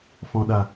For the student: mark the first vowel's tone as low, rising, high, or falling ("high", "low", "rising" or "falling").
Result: low